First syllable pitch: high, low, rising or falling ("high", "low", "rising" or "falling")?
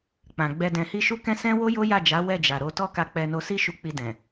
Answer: low